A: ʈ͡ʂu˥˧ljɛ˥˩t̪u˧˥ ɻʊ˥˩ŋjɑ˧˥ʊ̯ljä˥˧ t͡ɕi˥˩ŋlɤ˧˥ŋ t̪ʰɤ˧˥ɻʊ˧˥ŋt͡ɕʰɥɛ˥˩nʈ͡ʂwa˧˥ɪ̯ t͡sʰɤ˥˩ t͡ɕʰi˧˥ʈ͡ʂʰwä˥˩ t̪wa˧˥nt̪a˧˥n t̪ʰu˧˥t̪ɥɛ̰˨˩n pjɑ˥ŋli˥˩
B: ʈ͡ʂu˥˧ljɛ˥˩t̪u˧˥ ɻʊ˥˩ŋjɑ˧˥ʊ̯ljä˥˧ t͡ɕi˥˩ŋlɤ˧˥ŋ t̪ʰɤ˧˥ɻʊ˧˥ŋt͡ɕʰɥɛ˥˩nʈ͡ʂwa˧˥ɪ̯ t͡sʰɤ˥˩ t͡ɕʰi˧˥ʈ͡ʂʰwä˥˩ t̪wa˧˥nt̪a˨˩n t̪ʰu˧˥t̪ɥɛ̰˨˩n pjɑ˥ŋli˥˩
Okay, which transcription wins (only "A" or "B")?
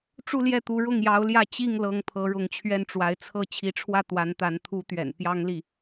A